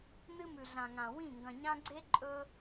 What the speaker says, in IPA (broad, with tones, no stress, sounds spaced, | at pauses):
n ɨ˦ m ʉ˨ ɮ ã˨ ŋ ã˨ w ĩ˦˨ ŋ ɡ ɐ̃˨ ɲ ã˦ ɡ͡ǀ e˦ ǃʼ ɵ˦